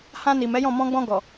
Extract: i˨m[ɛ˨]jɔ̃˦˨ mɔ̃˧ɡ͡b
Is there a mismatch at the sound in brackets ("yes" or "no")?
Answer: yes